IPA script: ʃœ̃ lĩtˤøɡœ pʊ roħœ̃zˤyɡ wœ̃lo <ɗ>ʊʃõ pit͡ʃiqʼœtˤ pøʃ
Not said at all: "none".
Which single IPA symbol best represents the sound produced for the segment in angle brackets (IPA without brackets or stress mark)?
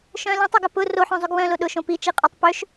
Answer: ɗ